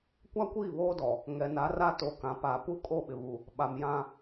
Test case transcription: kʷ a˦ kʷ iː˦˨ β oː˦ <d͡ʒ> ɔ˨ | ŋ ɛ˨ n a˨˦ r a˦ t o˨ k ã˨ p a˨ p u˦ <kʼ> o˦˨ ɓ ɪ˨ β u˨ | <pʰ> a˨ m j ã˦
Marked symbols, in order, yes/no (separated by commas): no, yes, no